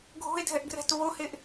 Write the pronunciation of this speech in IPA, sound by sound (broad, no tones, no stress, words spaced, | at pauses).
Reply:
ɡʱo̤e̯dʱɛʔɡrɛ̤t βoheʔ